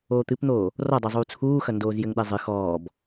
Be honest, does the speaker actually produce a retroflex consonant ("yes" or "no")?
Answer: no